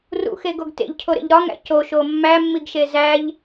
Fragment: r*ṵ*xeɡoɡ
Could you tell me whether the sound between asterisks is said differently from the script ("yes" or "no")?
no